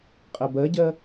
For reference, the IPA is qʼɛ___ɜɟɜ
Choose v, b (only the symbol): b